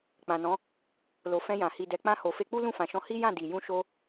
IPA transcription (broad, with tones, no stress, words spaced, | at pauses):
k͡pã˨nɔ̃˨˦ | lo˨fɛ̃˧jã˨ hi˨dɛ˨k͡pã˧ ho˨fe˧k͡pu˦ lũ˦˨fã˨ʃɔ̃˧ hi˦jã˦˨ di˨ jũ˧ʃo˧